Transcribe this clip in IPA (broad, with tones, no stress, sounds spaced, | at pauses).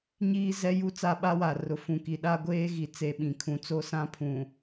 ɲ iː˦ z ɛ˦ j u˦ t͡s a˦ ɓ a˦ w a˨ r ʊ˨ f ũ˨ k i˨ ɗ a˦ ɡʷ eː˦ ɣ i˨ t͡s e˨ ɓ ĩ˨ kʰ ũ˨ t͡s o˦ s ã˦ pʰ ũ˨